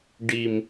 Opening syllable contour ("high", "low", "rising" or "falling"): low